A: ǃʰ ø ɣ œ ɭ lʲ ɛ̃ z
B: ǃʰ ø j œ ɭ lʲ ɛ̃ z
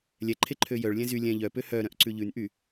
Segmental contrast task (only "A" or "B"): B